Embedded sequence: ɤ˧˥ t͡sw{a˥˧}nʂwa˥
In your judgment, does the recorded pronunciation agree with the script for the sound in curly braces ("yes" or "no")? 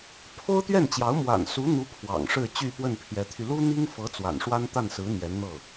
no